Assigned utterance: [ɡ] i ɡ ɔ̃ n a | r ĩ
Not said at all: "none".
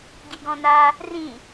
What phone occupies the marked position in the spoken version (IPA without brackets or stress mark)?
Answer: ɡ